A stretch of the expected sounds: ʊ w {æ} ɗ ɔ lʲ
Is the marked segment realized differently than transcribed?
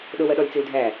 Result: yes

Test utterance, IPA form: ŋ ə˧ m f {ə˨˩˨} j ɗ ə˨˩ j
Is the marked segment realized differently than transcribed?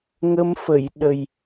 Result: no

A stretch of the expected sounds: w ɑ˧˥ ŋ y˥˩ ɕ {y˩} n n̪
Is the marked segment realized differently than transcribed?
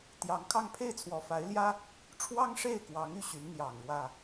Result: yes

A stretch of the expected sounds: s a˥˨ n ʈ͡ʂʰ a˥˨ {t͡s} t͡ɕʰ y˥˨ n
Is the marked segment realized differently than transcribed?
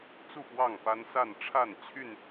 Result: yes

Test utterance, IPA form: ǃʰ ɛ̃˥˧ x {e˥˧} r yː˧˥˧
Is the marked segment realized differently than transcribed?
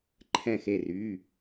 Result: no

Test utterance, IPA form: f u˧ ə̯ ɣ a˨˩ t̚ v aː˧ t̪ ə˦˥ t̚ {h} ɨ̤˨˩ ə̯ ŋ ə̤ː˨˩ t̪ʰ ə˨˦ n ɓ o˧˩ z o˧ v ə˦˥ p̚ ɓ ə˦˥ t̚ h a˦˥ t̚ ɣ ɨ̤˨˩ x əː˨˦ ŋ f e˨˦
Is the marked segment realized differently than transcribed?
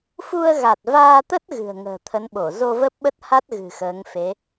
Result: yes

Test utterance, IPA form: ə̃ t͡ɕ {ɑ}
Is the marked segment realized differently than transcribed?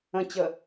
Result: yes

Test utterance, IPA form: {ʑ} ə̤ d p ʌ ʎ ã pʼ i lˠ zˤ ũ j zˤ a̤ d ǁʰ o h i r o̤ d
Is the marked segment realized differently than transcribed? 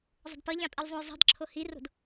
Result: yes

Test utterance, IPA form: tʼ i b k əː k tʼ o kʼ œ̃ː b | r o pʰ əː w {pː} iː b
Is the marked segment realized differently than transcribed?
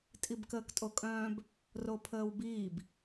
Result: yes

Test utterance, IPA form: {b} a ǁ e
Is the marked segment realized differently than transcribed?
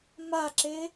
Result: yes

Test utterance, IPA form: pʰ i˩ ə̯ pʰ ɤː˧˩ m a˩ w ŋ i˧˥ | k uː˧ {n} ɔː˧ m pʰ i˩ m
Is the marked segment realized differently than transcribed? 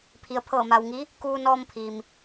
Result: no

